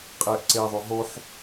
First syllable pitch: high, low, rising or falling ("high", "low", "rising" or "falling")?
low